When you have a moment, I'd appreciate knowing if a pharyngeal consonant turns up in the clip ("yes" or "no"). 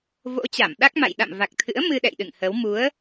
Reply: no